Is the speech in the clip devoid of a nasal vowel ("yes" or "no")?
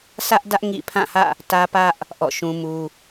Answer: no